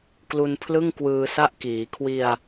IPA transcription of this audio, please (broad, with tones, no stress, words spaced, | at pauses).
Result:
klu˧npʰlɯ˥˩ŋ kwɯː˧sa˥˩ʔ kiː˩˦kʰwi˧a̯